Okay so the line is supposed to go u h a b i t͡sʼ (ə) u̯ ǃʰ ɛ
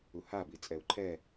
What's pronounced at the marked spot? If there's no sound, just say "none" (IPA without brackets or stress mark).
ɛ